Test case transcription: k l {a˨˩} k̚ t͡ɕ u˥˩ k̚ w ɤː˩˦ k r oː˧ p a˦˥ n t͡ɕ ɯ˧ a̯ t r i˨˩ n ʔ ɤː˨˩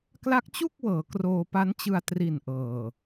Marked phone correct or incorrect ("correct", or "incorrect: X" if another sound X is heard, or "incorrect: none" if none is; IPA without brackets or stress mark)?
incorrect: a˦˥